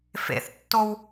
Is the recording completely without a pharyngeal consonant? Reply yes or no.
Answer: yes